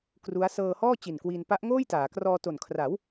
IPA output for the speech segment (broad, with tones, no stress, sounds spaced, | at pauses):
k r u˦˥ a̯ s ɤː˧ h ɔː˥˩ t͡ɕ i˨˩ n k w iː˧ n p a˦˥ ʔ ŋ oː˥˩ j t aː˩˦ k r ɔː˧ t o˨˩ n kʰ r a˩˦ w